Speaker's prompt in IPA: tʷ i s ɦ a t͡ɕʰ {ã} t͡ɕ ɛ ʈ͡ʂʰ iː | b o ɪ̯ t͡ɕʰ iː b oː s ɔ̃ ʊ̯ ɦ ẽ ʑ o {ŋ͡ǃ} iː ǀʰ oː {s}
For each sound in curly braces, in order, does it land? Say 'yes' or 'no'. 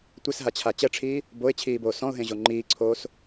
no, yes, yes

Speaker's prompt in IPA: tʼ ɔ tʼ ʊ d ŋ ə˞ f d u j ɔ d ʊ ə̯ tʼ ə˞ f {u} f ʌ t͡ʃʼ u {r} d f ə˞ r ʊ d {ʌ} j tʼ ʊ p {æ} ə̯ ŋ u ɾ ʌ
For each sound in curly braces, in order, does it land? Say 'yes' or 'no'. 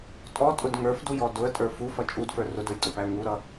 yes, no, no, yes

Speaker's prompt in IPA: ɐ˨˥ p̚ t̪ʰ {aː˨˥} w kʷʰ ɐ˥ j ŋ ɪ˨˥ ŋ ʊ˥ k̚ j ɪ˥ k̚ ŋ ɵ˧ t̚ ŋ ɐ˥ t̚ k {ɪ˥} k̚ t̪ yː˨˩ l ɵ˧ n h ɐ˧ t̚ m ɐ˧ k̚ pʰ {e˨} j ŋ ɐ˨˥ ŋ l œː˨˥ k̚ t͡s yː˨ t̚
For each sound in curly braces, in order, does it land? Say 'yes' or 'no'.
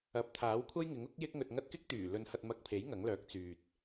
yes, yes, no

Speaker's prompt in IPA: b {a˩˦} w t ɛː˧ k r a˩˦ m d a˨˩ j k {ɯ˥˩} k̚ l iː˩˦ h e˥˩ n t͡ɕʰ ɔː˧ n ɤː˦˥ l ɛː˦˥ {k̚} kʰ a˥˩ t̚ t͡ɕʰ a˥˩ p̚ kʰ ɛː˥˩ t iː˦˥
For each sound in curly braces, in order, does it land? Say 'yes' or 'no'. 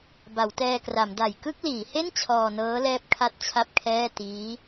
yes, yes, no

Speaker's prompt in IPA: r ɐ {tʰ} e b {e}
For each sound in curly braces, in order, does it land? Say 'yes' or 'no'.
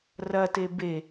no, yes

